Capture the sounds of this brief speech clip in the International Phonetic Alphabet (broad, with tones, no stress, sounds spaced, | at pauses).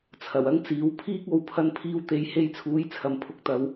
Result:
t͡sʰ ɐ˨˩ w ɐ˥ ŋ t͡s iː˨˥ w pʰ iː˧ k̚ o˨ w pʰ ɐ˧ n pʰ iː˧ w t̪ e˨˧ j h e˧ j t͡sʰ uː˨˥ j t͡sʰ ɐ˨ m pʰ ʊ˧ k̚ t̪ ɐ˨˧ w